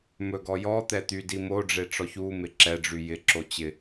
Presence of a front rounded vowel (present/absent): present